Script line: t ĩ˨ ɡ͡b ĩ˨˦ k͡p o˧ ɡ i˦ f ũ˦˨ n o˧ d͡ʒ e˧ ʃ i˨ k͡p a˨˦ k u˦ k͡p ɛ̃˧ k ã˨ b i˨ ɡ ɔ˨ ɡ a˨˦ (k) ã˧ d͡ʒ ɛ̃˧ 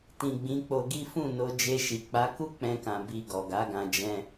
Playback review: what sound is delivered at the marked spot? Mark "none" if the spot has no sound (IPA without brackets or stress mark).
ɡ